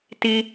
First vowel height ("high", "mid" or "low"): high